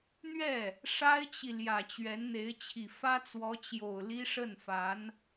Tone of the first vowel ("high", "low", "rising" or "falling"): falling